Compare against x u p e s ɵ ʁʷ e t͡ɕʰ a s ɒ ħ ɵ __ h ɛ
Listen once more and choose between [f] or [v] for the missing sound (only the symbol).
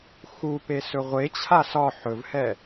v